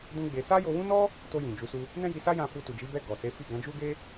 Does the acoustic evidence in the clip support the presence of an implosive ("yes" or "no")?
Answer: no